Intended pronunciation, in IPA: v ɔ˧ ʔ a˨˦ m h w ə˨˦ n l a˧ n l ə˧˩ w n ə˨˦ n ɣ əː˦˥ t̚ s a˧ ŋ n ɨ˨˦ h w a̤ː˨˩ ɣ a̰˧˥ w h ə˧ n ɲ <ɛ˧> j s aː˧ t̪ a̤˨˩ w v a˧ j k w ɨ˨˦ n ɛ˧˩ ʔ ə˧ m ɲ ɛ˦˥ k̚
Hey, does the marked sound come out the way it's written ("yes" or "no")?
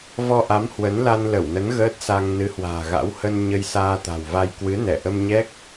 no